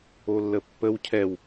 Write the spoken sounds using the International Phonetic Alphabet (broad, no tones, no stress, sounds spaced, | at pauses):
o lː ə pː ə w cʰ ɛ w